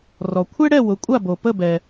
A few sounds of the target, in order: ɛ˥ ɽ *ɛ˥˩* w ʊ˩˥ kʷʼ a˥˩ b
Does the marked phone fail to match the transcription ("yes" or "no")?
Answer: no